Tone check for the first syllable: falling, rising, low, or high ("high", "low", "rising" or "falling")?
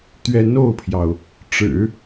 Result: rising